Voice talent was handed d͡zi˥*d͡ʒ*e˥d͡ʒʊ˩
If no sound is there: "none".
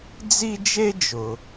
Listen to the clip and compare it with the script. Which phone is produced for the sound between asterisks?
d͡ʒ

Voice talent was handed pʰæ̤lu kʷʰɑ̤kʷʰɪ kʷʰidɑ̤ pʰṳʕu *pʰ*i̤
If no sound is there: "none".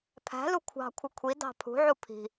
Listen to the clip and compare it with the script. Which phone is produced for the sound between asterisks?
pʰ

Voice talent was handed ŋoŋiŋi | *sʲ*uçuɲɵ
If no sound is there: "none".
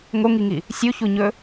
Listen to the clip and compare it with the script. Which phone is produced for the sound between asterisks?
sʲ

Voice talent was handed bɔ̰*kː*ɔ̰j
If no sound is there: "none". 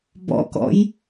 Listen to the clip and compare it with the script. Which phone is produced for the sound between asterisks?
k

